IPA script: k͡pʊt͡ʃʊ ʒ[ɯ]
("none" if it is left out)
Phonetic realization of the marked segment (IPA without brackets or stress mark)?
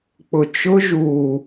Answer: u